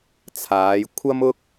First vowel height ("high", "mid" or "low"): low